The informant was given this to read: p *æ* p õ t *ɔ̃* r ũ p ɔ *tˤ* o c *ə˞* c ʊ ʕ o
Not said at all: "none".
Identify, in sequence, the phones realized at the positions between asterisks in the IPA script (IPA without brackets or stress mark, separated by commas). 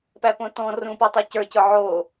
æ, ɔ̃, tˤ, ə˞